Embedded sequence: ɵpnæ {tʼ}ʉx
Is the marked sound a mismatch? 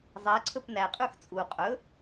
yes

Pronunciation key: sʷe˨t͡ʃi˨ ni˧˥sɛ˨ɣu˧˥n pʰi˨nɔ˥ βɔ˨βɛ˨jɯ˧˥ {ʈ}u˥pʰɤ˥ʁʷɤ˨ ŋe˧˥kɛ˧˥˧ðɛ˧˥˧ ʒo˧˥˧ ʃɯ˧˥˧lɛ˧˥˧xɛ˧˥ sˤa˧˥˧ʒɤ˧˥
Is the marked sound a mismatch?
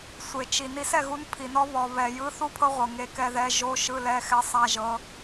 yes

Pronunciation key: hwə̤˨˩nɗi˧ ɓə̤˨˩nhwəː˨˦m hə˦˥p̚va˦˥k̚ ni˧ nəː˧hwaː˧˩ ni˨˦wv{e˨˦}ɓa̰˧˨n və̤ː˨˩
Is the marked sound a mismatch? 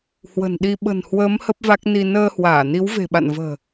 yes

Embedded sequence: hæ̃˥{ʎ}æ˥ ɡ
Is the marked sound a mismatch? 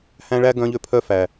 yes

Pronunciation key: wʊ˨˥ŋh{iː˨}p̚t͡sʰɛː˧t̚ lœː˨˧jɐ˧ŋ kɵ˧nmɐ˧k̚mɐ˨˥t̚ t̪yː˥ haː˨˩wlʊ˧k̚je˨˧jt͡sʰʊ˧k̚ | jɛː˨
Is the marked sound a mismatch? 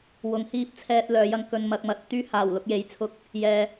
yes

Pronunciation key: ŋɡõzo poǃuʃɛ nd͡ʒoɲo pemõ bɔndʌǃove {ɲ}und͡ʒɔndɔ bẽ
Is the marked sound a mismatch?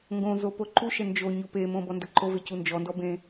yes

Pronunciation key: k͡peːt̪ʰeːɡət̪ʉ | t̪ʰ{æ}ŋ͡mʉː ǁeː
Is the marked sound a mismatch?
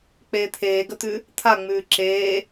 yes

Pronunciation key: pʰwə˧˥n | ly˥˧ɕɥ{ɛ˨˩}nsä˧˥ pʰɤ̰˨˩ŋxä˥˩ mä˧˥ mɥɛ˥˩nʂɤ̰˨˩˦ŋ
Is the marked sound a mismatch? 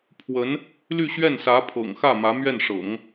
yes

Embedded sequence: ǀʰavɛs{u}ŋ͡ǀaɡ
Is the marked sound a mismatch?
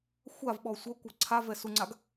no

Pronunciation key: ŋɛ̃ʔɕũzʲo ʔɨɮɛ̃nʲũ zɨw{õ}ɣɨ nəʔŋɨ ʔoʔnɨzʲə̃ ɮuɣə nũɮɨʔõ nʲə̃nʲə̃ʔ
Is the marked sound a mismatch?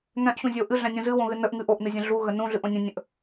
no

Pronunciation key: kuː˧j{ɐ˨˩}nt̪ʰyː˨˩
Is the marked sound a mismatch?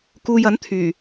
yes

